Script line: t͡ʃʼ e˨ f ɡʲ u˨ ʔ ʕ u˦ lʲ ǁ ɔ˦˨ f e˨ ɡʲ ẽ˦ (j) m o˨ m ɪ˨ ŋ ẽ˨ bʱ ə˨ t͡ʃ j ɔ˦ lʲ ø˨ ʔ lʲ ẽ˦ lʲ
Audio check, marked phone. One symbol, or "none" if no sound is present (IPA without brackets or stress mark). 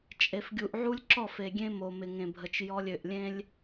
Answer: none